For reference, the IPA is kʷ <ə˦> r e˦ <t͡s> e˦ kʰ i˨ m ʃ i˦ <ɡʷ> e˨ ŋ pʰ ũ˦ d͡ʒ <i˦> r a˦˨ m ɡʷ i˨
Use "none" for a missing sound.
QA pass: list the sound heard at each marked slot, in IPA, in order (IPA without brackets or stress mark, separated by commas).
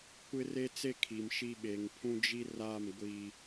ɪ˦, t͡s, ɓ, i˦